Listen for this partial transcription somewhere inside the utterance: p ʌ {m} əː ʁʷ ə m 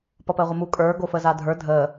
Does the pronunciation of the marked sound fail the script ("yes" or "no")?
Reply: yes